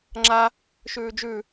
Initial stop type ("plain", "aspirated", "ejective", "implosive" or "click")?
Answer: click